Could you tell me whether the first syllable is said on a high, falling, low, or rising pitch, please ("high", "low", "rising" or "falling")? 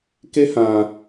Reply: high